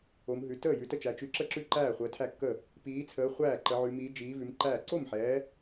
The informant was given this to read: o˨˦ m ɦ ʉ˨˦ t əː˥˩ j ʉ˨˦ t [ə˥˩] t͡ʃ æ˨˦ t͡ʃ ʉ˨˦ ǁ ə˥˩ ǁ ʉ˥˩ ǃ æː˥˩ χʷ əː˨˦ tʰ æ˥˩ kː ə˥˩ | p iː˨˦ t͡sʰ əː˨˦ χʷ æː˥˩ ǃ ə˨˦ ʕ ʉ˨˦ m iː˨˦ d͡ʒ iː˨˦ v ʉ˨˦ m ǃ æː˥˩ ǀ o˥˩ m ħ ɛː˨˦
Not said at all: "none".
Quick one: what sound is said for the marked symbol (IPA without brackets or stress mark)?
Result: ə˥˩